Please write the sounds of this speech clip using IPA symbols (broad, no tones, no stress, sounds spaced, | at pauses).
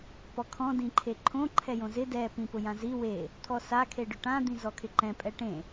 p ɔ kʰ ɔ̃ d ĩ ǃʰ e ǃʰ õ ǃʰ ɛ j õ z ɪ d ɛ p ĩ p ʊ j ã z i w e | t̪ʰ ɔ s a kʰ e ɖ ʊ ʈ ã d̪ ĩ z ɔ kʰ ɪ ǃ ɛ̃ pʼ ɛ ʈ ẽ